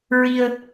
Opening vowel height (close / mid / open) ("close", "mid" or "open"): close